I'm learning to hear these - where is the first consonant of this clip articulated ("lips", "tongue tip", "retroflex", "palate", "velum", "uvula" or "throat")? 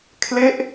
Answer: velum